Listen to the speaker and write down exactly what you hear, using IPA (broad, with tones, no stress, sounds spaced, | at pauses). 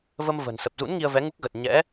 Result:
v ə˧ m v ə̤˨˩ n s ə˨˩ p̚ z ṵ˧˥ n ŋ i˧ ə̯ v ɛ˨˦ ŋ u˦˥ k̚ ɣ ə˨˩ t̚ ɲ ɛ̰˧˥